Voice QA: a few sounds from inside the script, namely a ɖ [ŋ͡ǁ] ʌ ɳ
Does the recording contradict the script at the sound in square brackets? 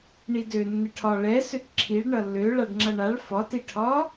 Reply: no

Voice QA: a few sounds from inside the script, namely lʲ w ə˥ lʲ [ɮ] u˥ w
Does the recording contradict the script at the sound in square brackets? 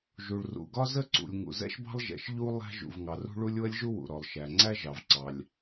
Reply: yes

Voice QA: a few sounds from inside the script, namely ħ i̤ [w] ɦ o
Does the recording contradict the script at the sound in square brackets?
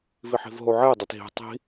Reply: yes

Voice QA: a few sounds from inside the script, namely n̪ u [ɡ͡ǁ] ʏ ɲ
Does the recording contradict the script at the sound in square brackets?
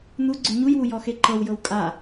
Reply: yes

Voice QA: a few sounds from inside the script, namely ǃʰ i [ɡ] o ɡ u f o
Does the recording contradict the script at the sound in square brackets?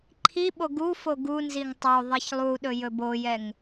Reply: yes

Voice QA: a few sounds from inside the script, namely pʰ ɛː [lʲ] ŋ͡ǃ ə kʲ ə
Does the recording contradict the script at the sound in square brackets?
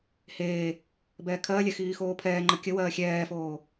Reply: yes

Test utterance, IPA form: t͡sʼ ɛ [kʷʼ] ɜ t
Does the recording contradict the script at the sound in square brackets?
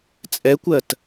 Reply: yes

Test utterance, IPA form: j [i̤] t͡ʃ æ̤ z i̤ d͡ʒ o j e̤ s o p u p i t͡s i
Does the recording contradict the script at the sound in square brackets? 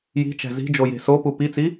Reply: no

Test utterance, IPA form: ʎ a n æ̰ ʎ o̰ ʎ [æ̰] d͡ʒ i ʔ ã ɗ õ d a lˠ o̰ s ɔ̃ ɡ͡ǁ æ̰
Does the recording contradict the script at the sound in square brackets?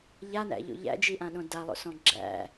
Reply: no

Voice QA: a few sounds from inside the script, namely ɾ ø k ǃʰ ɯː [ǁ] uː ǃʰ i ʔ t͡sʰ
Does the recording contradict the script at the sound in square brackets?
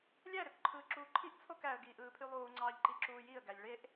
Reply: no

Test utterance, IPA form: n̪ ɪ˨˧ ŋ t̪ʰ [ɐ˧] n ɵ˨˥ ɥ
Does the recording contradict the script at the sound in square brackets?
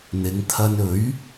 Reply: no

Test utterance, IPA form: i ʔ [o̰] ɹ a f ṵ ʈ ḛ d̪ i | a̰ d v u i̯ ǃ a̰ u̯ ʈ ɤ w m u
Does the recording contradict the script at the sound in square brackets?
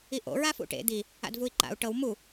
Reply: no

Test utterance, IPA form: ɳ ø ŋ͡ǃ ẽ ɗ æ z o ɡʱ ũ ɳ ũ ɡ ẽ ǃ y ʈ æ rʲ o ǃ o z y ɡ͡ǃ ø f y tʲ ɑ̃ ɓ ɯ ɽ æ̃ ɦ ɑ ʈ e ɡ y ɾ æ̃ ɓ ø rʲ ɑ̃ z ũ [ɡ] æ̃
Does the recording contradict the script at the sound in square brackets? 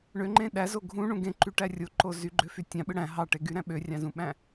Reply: yes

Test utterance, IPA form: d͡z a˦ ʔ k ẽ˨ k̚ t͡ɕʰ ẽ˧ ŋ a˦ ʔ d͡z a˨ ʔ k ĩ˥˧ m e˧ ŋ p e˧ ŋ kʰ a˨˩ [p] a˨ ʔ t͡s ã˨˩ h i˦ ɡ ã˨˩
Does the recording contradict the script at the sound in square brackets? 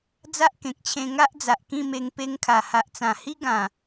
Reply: yes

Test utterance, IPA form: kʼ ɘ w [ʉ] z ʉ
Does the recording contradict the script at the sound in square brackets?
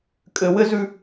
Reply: yes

